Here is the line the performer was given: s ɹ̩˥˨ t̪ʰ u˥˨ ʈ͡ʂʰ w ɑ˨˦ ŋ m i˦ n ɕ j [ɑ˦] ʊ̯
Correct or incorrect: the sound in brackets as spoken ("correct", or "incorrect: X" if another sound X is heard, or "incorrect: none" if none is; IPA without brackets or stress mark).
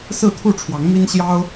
correct